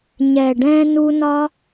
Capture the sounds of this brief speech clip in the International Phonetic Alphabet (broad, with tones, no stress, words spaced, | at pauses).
ɲɛ˨ɖɛ̃˧ nu˧nɒ˦